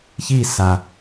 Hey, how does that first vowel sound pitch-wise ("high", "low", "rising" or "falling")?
falling